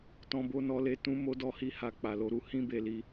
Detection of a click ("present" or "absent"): absent